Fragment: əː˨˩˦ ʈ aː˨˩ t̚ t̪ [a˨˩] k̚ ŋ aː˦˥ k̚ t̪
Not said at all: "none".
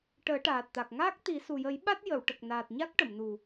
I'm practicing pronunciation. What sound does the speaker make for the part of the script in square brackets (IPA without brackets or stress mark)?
a˨˩